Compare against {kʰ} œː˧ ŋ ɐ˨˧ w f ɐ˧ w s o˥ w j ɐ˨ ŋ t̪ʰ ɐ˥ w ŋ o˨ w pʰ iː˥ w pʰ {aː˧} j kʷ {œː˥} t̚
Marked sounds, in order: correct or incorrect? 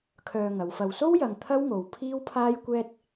correct, incorrect: aː˥, incorrect: ɛː˥

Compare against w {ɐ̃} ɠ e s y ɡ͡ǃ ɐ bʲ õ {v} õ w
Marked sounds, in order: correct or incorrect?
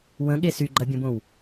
incorrect: ə̃, incorrect: b

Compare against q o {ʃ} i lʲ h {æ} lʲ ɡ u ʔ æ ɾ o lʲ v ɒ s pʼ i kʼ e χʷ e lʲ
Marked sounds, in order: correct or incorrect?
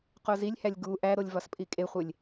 incorrect: z, correct

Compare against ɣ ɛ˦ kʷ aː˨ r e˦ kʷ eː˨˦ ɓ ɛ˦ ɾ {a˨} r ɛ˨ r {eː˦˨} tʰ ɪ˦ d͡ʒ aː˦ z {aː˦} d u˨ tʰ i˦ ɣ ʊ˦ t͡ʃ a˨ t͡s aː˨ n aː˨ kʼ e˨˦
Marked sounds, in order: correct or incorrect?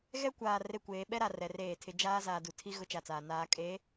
correct, correct, incorrect: aː˨

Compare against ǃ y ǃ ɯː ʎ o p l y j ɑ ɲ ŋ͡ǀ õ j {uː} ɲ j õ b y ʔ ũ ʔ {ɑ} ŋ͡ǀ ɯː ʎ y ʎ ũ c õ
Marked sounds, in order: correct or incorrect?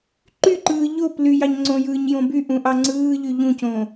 incorrect: ɯː, correct

